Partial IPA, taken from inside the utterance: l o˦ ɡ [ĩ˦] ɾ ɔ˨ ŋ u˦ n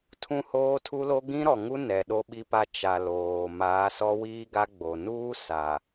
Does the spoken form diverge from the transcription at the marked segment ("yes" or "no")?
no